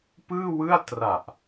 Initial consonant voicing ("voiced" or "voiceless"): voiceless